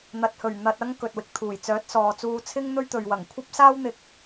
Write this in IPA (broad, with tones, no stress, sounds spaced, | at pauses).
n̪ ɐ˨ t̚ h ɵ˨˩ ɥ n̪ ɐ˧ t̚ ɐ˥ ŋ k ɵ˨ t̚ w ɪ˨ k̚ t̪ʰ uː˨˩ j t͡s œː˨˥ t̚ s ɔː˨ t͡s uː˧ t͡sʰ ɪ˥ ŋ n̪ ɵ˥ ɥ t̪ ɵ˨ ɥ w ɐ˨˩ ŋ kʷʰ ɐ˥ p̚ s aː˥ w n̪ ɪ˨ k̚